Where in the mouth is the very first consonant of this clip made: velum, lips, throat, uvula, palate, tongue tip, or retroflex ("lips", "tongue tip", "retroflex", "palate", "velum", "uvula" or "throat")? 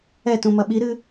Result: tongue tip